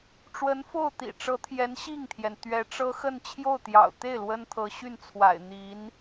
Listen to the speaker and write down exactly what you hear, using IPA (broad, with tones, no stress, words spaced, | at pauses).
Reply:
ʈ͡ʂwə˧˥nfo˥˩ʊ̯t̪ḭ˨˩ʈ͡ʂɤ˧˥ t̪ʰjɛ˧˥nɕi˥˩ŋt̪ʰjɛ˩n t̪ɥɛ˧˥ʈ͡ʂɤ˥ xə˥˧nt͡ɕʰjo˥˩ʊ̯t̪jɑ̰˨˩ʊ̯ t̪e˥˩ɪ̯ lwə˥nt̪ʰɤ˧˥ɕy˥˩nt͡sʰwa̰˨˩ɪ̯ n̪i˧˥n